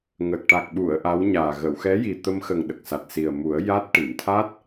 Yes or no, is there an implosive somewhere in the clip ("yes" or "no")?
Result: yes